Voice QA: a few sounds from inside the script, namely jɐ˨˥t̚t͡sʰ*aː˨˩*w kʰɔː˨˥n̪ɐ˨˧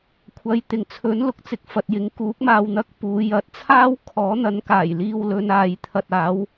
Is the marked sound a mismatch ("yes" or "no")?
yes